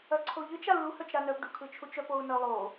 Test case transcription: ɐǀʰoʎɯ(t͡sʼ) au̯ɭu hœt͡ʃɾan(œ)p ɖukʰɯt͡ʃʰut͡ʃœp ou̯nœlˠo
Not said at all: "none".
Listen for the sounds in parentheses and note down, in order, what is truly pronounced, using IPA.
t͡ʃ, œ

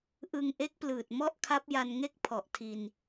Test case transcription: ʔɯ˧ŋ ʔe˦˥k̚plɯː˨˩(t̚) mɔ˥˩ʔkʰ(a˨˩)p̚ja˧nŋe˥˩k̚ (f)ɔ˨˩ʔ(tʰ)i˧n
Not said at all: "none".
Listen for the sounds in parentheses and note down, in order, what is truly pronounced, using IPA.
t̚, a˦˥, pʰ, tʰ

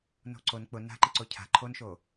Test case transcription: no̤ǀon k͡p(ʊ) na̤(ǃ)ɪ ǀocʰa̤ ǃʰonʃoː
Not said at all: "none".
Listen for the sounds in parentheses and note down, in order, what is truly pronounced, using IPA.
ʊ, ǃ

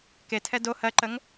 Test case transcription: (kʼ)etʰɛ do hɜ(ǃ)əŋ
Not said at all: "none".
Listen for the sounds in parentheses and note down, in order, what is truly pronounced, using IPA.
k, ǃ

